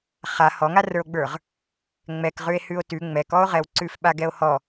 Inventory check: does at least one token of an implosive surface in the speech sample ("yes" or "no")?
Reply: yes